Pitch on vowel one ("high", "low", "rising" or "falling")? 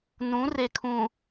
rising